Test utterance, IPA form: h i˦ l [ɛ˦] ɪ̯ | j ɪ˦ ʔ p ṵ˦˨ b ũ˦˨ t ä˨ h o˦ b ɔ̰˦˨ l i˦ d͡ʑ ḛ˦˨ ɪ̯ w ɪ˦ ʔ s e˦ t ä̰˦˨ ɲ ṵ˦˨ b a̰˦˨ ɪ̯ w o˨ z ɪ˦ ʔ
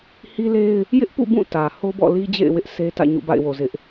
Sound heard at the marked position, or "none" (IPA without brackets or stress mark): e˦